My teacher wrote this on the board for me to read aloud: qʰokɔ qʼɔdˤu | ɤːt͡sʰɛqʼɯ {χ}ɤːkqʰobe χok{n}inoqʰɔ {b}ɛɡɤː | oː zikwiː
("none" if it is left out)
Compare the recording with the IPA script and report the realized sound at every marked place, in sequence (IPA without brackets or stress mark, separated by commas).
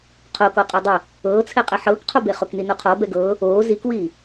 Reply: ħ, n, b